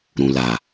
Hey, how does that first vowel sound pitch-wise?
low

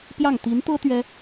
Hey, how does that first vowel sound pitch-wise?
falling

